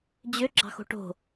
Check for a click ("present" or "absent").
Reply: present